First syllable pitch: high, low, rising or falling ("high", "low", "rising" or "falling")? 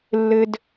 low